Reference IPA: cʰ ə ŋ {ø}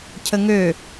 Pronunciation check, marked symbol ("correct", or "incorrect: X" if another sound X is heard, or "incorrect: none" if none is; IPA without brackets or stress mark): correct